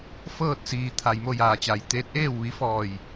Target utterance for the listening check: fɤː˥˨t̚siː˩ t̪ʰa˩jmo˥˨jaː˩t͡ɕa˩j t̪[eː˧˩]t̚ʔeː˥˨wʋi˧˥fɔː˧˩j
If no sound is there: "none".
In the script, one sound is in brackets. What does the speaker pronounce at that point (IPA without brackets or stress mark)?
eː˧˥